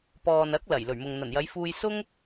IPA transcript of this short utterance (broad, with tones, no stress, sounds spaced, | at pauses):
p ɔː˨ n ɐ˨˥ k̚ l ɐ˨˩ j l ɵ˨˩ ɥ m ʊ˨ ŋ n̪ ɐ˨˩ n j ɐ˨˧ j f uː˧ j s ʊ˥ ŋ